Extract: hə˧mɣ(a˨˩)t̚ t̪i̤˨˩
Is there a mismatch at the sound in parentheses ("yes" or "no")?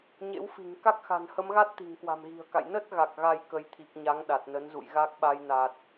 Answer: yes